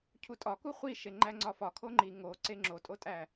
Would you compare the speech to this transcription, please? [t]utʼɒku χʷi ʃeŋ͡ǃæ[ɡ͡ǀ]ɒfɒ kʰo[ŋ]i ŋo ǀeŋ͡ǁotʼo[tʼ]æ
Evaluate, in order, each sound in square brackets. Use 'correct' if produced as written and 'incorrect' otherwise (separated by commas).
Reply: incorrect, incorrect, incorrect, correct